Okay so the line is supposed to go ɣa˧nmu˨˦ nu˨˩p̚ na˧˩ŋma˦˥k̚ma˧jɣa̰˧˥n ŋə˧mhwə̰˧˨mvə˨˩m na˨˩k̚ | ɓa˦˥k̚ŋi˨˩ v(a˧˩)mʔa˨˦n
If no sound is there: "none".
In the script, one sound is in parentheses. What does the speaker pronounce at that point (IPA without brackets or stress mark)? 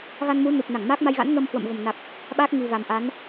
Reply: a˨˩